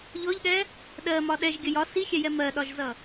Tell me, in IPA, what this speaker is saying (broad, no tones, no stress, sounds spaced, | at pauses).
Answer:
ʎ ɔ ʎ ɠ ɛ | ɗ ɜ m ɒ ɗ ɛ ʒ ɡʲ ə j ɒ s i xʲ ɛ j ɛ m ɜ ɗ ɒ ʒ z ʌ